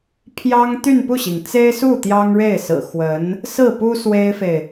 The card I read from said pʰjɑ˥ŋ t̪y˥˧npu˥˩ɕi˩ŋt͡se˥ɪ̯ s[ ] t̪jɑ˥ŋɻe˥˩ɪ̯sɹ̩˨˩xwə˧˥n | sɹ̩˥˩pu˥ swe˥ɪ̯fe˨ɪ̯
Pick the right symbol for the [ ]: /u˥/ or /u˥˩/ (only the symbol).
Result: u˥˩